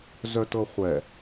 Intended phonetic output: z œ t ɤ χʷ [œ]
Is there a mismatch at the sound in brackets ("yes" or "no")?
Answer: yes